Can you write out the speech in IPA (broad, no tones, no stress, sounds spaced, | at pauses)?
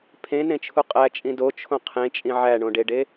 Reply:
pʰ ẽ n ẽ t͡ʃʰ u qʼ æ t͡ʃʼ ĩ d o t͡ʃʰ õ qʰ ẽ t͡ʃʼ ĩ ʕ æ ɳ õ ɖ e ɖ e